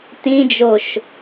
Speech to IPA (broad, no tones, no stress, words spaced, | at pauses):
tĩd͡ʒoʃ